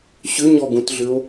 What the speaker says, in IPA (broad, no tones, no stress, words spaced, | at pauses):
ɕʏɲɔɡũtɮʏo̯